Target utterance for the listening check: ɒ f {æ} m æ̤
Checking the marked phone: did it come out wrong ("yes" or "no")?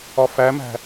no